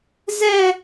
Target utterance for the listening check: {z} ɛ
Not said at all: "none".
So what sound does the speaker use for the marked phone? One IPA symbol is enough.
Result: z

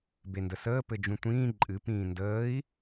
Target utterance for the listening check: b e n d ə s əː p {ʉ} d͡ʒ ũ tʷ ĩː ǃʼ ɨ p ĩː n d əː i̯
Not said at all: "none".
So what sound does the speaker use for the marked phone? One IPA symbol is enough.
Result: ɘ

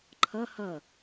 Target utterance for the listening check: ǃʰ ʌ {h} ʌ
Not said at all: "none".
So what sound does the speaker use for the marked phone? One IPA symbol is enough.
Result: h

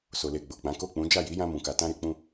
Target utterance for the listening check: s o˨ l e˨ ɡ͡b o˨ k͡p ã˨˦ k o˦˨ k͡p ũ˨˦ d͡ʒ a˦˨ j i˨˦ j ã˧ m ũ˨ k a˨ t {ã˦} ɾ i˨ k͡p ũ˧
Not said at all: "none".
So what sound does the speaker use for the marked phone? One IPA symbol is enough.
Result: ã˧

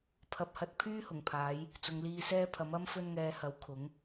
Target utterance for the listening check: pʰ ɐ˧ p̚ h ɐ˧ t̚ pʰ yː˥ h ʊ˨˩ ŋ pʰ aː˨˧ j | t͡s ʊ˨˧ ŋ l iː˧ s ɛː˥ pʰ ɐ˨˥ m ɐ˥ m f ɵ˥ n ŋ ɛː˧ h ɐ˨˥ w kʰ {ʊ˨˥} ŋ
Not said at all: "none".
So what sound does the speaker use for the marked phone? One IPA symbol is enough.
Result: ʊ˨˥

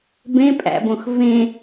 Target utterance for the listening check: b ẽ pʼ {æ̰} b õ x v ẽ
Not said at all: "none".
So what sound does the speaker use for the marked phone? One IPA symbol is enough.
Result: æ̰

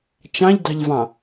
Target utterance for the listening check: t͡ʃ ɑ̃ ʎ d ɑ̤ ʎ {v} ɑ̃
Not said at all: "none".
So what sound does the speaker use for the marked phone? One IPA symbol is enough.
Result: v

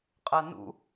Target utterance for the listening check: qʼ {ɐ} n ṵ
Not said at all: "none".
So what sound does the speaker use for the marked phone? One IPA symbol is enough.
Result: ɐ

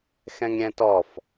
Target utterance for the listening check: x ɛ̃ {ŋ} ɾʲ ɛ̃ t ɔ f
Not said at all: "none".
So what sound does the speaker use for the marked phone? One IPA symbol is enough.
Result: ŋ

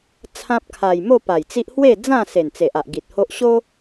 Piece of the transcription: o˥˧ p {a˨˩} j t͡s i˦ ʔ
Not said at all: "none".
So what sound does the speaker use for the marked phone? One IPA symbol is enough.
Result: a˨˩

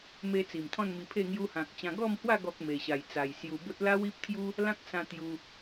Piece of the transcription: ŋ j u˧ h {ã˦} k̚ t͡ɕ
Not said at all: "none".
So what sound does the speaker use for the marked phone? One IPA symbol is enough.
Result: ã˨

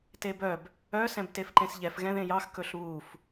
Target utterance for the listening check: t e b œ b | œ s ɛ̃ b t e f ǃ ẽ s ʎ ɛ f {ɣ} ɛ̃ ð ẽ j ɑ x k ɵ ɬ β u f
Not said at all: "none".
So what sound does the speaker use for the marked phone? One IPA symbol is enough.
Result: ɣ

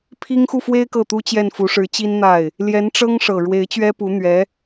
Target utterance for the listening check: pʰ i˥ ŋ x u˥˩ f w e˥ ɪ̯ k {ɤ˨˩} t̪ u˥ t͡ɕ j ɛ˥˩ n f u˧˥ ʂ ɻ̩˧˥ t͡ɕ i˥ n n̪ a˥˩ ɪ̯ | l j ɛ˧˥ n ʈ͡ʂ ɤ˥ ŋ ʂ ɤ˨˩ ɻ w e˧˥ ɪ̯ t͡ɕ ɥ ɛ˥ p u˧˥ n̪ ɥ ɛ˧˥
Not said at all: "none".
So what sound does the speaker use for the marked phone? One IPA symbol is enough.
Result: ɤ˥˩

